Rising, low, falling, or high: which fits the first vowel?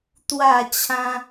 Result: falling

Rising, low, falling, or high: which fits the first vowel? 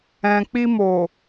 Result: low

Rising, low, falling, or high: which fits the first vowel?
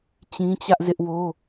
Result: high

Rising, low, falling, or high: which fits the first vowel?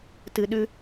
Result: low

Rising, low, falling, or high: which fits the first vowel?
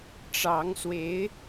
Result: rising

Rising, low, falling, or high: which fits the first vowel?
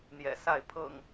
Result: low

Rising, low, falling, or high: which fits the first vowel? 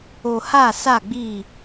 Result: low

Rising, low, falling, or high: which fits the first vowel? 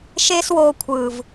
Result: high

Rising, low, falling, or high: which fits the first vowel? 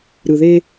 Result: low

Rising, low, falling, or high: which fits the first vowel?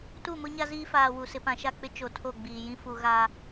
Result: falling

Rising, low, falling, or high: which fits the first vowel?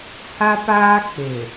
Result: high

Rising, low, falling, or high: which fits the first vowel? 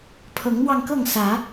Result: rising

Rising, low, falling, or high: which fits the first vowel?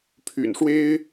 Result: low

